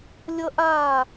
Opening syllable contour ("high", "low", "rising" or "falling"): high